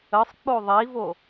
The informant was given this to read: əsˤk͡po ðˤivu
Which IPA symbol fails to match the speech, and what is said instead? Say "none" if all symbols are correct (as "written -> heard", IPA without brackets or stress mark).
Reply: u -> o